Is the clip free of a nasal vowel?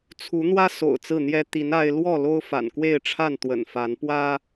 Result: yes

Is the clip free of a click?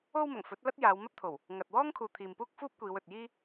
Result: yes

